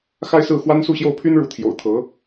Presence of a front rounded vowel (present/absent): present